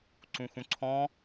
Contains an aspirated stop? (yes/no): yes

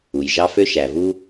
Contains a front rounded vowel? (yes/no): yes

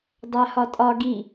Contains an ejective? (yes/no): yes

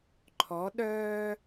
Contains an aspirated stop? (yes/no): yes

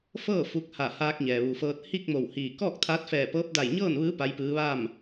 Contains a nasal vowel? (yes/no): no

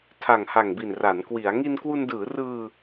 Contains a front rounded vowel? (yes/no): no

